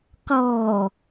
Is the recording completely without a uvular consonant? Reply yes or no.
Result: no